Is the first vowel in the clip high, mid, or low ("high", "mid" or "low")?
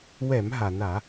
mid